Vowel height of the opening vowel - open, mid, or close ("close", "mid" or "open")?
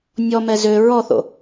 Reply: mid